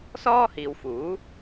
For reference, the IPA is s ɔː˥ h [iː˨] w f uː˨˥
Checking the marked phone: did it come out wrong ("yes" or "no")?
no